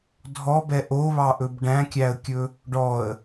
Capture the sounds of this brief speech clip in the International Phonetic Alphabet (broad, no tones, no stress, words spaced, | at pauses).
dʱɔbɛ ʔoβɑʔɵb ɖæ̃kʲæə̯kʲɵ | ɖɔə̯